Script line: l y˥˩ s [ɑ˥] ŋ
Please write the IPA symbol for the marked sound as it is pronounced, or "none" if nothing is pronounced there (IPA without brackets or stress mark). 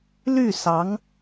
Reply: ɑ˧˥